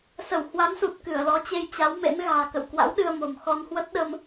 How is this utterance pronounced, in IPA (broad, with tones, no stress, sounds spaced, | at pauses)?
s ə˧˩ w h w a˨˦ m s u˨˩ t̚ k ɨ˧˩ ə̯ l ɔ˨˦ t͡ɕ e˧ j t͡ɕ a˨˦ w m ḛ˧˥ n ɣ a̤ː˨˩ k ə̰˧˨ w k w a̰˧˥ w ɗ ɨ˧ ə̯ m o̤˨˩ m x ɔ˧ n h w ə˦˥ t̚ ɗ ə˧ m